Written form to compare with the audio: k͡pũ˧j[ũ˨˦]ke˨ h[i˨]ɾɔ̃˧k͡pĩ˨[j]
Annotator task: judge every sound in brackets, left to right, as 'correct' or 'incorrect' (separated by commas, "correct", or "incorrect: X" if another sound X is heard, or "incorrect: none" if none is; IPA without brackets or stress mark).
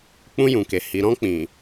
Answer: incorrect: ũ˨, correct, incorrect: none